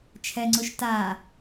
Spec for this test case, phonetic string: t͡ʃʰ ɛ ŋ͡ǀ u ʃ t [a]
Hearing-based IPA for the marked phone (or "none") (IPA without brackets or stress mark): a